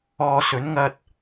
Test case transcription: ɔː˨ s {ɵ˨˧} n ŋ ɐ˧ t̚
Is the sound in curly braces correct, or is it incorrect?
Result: incorrect